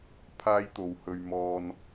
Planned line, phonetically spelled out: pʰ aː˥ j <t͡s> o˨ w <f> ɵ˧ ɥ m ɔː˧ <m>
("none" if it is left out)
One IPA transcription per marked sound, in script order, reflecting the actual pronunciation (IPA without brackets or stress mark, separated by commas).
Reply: t̪, h, n